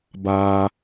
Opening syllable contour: high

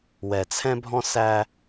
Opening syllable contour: low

